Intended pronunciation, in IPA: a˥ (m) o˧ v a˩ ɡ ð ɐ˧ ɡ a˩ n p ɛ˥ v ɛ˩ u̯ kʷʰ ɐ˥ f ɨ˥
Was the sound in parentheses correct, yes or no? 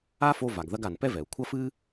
no